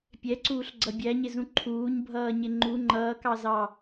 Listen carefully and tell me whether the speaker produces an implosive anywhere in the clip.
no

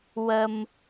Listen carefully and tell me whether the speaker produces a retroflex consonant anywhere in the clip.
no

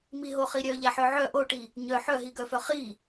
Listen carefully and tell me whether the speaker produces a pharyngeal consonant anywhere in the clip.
yes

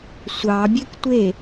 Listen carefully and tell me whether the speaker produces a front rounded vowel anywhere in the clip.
yes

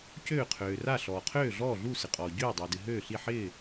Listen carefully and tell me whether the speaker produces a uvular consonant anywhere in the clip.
yes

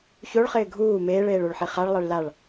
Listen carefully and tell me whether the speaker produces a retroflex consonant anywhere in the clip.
yes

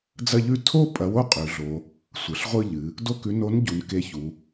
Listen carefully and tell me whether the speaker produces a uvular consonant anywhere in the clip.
yes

